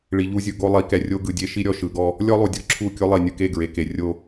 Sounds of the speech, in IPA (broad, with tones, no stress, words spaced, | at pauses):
ɭi˨ʎu˦zʲɯ˨ ɡo˦lˠi˨˦kɛ˨rʲo˦ ɡɯ˨dʲe˦ ʃi˦ɾʲɔ˨ʃɯ˨ɡɔ˦ | lʲɔ˦lˠu˨dʲɤ˨ǁʰu˦˨ kʲo˦lˠi˨nʲɯ˨ ke˦˨ɡɹe˨ke˨ rʲo˦